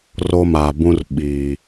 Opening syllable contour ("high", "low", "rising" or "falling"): high